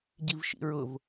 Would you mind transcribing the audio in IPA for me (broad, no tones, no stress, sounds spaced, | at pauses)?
ɟ i v ʃ ḭ ɹ ʊ v